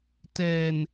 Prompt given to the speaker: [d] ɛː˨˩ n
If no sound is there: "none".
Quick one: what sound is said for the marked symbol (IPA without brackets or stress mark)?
t